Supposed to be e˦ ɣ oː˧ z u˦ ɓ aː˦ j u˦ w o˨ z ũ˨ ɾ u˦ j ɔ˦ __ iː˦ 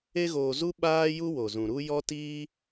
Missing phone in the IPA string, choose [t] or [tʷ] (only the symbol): t